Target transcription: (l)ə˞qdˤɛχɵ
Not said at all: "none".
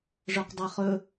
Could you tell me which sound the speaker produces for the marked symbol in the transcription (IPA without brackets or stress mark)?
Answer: ʐ